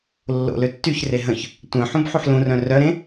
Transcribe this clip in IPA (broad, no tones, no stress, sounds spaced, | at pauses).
lː o̰ l ø tː y ç r e ɦ ə̃ ç | tʷ œ̃ ħ ũ b ħ u ħ l ũ r œ̃ r œ ɾ ẽ